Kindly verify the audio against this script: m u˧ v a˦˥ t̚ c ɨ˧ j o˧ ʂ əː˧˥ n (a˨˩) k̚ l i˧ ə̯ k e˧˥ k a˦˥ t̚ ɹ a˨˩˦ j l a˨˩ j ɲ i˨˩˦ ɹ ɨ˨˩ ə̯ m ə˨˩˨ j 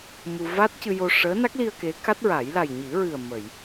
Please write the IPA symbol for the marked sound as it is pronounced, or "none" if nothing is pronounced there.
a˦˥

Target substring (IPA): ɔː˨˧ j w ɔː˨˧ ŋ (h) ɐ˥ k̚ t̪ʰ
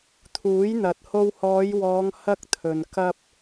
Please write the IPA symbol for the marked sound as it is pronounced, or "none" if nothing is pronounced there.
h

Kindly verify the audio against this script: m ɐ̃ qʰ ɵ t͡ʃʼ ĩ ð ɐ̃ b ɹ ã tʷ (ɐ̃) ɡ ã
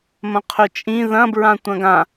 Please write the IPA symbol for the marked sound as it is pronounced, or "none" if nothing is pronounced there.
ɐ̃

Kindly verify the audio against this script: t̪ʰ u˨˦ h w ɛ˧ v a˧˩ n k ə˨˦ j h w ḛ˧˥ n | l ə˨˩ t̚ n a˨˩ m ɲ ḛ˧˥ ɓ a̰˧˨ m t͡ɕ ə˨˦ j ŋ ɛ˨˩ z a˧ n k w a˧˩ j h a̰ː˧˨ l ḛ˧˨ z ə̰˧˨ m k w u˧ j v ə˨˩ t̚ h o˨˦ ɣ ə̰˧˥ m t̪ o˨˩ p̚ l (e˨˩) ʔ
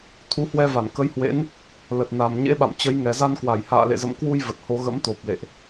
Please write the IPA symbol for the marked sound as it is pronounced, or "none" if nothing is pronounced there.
ḛ˧˨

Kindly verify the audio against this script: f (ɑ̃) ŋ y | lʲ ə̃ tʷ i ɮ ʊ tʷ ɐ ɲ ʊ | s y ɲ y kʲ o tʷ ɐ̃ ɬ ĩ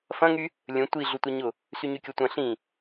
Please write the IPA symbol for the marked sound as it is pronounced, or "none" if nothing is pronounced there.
ɐ̃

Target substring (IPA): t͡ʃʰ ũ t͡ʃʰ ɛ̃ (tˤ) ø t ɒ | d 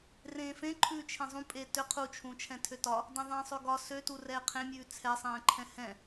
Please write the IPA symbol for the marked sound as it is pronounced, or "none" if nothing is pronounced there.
tʰ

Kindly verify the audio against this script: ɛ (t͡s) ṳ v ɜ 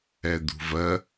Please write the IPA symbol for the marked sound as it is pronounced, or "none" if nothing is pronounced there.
d̪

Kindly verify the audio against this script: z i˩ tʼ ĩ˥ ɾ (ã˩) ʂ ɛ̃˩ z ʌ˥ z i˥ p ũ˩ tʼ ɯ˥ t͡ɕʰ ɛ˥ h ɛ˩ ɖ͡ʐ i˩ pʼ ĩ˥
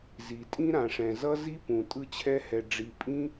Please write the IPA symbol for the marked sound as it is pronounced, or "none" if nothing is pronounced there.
ã˩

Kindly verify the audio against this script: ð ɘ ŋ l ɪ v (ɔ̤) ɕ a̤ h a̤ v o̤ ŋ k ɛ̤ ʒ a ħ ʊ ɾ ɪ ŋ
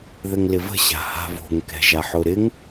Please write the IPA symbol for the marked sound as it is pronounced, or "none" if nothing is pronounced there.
ə̤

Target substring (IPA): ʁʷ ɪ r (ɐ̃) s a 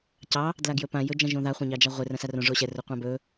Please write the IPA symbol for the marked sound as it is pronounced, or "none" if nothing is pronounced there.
ɐ̃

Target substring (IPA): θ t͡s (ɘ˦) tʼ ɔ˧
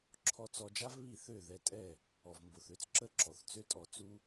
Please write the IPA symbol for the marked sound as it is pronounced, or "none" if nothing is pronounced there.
ø˦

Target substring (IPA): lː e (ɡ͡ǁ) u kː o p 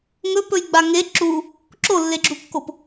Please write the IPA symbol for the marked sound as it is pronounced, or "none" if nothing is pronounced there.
ɡ͡ǁ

